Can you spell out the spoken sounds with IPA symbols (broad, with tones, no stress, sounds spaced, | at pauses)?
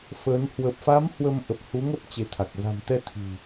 f ə˨˦ n h w ə˨˩ p̚ f a˨˦ m h w ə˧ m ʔ ə˨˩ p̚ h u˨˦ ŋ ə˦˥ p̚ t͡ɕ e˨˦ t̪ʰ a˨˩ k̚ z a̤˨˩ m t̪ ɛ˧ t̪ʰ i̤˨˩